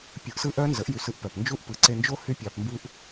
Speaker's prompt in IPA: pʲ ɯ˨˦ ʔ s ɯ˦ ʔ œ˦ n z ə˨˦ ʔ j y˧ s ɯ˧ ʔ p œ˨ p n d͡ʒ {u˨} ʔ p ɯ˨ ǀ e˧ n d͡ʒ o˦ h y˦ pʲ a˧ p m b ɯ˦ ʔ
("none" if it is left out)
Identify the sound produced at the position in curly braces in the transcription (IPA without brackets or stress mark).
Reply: u˦